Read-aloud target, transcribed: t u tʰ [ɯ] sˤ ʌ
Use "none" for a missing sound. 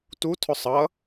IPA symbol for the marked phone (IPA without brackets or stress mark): ʊ